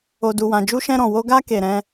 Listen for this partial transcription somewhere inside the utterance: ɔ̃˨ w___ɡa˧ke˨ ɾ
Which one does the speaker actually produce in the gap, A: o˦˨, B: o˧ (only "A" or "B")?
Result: B